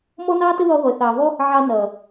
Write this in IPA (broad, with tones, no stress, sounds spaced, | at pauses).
m ɔ˦ n ɑː˦ t ə˦ ð ɔ˧ ʁʷ e˨ θ ɑː˨ v ɔ˦ | ʕ ɑ˧ n ʌː˨